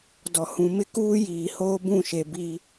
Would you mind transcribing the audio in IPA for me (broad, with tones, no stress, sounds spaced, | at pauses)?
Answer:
d ɔ˨ h ũ˨ m ɪ˦ k uː˦ j iː˨ h oː˦ b ũ˦˨ ʃ e˨ b i˦